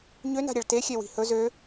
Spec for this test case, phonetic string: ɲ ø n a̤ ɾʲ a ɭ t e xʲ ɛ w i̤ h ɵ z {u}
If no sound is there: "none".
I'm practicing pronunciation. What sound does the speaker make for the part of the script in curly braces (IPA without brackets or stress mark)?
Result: ø